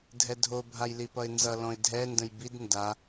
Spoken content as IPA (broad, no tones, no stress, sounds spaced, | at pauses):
dʱ ɛ dʱ o bʱ a j l i p ʌ ɪ̯ n z ʌ l ɔ̃ ɪ̯ dʱ ɛ n d ə̃ j b i d n d a